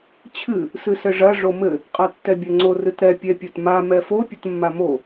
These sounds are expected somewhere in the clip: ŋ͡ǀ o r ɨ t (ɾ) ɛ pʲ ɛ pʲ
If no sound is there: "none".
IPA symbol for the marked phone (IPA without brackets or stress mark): ɾ